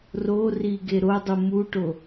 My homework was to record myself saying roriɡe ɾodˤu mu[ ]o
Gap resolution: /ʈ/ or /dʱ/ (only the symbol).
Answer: ʈ